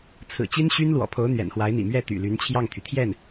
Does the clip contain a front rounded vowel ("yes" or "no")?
yes